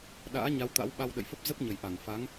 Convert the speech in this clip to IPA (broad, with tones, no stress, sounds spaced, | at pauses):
ɗ a̰ː˧˥ ɲ a˨˦ w t̪ a̰˧˥ w ɓ a˧ w ɗ ə̰˧˨ j f ə˦˥ p̚ z ə˦˥ p̚ ɲ ə˨˩ j ʔ a˧˩ ŋ f a˨˦ ŋ